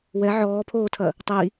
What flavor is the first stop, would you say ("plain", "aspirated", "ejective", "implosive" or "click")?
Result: aspirated